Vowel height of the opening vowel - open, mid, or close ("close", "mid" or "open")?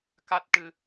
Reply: open